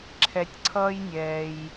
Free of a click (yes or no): no